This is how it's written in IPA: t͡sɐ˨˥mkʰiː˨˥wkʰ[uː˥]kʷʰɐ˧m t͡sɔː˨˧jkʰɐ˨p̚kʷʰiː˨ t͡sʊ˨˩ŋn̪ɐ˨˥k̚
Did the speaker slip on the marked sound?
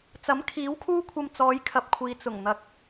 no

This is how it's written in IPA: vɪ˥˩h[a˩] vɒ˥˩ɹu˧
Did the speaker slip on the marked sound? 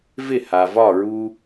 no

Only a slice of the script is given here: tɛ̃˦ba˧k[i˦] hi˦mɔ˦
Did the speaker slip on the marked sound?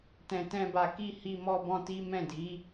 no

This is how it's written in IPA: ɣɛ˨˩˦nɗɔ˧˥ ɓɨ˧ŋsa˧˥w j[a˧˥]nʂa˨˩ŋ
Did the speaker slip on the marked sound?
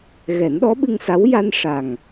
yes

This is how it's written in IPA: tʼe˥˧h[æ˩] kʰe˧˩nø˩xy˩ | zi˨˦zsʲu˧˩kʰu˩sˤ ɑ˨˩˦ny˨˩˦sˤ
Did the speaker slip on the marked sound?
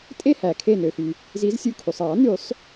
no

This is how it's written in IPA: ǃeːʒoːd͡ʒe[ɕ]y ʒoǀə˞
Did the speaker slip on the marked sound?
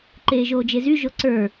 yes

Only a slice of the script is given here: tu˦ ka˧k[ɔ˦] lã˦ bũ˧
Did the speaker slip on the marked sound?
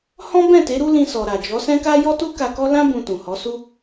no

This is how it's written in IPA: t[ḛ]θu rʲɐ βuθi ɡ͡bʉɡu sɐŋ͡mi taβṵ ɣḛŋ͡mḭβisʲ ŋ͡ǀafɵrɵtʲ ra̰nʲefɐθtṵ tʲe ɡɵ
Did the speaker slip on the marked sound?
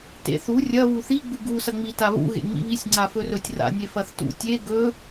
no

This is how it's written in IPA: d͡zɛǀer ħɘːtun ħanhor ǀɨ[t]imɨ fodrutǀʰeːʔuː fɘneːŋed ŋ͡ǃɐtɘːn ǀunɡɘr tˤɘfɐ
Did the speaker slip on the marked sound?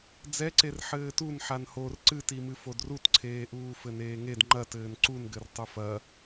no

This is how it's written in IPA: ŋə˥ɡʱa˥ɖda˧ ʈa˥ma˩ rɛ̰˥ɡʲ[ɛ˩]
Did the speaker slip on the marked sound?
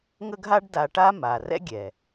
no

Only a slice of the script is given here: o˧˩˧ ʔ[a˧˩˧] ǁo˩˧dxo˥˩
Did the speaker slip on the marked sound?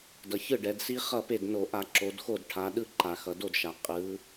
no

